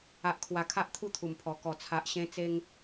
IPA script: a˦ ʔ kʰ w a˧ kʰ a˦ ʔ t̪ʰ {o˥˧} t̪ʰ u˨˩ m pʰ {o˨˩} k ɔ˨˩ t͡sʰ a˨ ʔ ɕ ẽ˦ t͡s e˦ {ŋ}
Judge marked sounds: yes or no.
no, no, yes

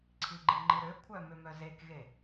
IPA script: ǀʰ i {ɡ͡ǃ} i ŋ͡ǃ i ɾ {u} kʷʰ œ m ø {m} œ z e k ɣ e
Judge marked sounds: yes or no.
yes, no, yes

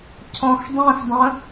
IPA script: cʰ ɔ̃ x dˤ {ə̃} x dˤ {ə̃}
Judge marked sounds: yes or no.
no, yes

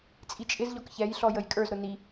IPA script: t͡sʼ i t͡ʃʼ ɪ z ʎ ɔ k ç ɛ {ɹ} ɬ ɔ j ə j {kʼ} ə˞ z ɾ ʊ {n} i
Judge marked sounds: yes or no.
no, yes, yes

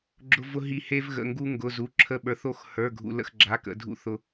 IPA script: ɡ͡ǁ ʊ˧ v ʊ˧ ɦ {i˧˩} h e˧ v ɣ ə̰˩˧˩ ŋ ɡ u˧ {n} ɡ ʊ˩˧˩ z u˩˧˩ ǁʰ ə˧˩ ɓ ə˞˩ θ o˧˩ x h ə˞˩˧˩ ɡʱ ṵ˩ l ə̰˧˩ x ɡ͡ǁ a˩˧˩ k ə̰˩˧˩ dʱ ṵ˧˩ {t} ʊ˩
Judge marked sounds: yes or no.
yes, no, no

